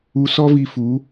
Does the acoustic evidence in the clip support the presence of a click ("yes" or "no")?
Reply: no